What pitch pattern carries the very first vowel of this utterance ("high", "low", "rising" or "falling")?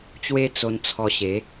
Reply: high